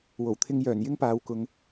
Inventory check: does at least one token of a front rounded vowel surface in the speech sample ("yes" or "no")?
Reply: yes